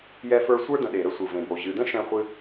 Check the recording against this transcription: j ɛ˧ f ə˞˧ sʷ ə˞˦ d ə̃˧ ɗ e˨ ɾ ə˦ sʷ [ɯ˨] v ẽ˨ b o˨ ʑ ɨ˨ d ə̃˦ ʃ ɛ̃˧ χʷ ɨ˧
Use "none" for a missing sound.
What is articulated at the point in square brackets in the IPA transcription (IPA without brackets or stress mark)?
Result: ɯ˨